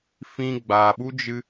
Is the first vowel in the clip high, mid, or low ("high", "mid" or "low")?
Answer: high